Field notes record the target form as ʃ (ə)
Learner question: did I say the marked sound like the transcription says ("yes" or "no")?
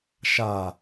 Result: no